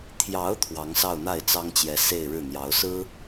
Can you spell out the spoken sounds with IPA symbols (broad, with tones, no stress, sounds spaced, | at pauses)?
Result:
t̪ʰ j ɑ˧˥ ʊ̯ t̪ʰ w ɑ˧˥ ŋ s ɑ˥˧ ʊ̯ n̪ a˥˩ ɪ̯ t͡s ɑ˥ ŋ t͡ɕ j ɛ˧˥ s e˥˧ ɪ̯ ɻ ɻ̩˥˩ n̪ j ɑ˧˥ ʊ̯ s ɹ̩˥